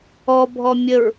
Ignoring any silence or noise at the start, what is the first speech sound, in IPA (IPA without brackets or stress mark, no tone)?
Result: ɔ